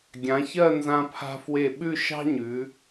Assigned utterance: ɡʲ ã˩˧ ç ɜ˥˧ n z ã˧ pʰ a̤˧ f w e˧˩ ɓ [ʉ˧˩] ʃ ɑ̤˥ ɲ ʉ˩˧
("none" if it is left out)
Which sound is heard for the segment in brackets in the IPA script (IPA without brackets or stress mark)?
ʉ˥˧